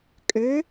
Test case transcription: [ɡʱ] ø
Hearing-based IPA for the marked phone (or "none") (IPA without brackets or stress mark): kʼ